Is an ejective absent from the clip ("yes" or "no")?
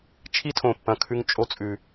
no